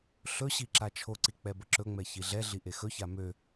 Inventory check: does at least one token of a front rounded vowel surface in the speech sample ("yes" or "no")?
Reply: yes